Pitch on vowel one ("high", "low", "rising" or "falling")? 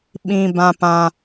high